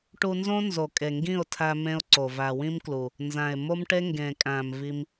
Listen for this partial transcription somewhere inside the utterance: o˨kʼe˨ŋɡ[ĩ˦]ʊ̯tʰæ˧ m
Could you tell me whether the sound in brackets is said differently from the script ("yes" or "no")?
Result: yes